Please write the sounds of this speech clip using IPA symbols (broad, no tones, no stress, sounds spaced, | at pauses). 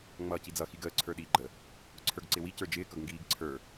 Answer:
ŋ͡m ʌː c i d͡z ʌ x i ɡ əː ǀʰ ə˞ ɗ iː ɡ͡ǃ ə | ǀʰ ə˞ ɡ ǀ ɪ w i c ə˞ d͡ʒ ɪː k ʌ ɡ ŋ ɡ iː ɡ ǀʰ ə˞